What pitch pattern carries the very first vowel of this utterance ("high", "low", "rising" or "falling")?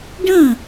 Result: falling